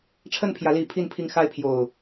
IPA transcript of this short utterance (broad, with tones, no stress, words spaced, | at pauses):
ʈ͡ʂʰə˥˨npʰjä˨˦li˨˦ pʰi˥˨npʰi˦ŋxa˦ɪ̯ pʰjo˨˩ʊ̯